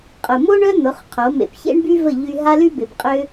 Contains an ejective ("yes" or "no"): yes